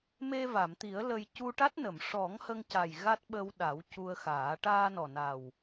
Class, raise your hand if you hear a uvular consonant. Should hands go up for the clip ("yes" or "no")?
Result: no